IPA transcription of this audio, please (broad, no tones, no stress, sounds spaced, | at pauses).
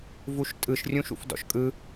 v u ʃ tʼ ɯ ʃ rʲ ũ ʃ ṵ f d ɔ̰ ʃ kʼ ɯ